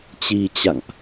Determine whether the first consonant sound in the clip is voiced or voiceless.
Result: voiceless